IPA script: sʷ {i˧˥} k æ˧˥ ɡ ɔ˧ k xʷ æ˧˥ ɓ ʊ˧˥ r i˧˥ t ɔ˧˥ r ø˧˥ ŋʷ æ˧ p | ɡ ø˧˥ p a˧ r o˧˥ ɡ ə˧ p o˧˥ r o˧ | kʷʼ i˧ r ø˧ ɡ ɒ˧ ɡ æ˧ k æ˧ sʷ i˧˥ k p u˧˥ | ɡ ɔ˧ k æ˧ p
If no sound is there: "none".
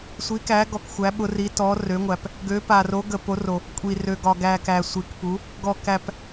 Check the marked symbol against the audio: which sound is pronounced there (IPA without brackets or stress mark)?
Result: i˧˥